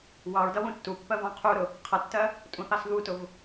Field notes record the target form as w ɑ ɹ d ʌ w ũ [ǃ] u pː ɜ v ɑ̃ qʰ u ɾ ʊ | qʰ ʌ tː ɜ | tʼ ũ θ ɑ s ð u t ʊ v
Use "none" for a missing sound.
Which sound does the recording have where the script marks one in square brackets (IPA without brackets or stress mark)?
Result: tː